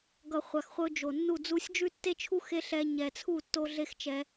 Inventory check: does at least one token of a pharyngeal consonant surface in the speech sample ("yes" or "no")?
no